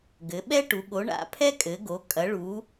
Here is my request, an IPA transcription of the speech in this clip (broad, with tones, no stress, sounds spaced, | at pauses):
ɡ ɘ˩˧ ɓ ɛ˦ ʈ u˩˧ ɠ o˩˧ ɳ a̰˩˧ pʰ ɛ˦ kʼ ɘ˩˧ ɡ o˩˧ kʼ ɐ˩˧ ɭ u˩˧